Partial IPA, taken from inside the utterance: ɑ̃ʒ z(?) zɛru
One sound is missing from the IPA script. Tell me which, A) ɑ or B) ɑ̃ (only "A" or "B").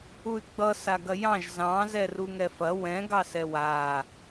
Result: B